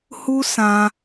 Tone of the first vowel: high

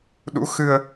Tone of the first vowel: rising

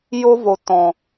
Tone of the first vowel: high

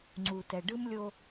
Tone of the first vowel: low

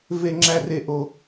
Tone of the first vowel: low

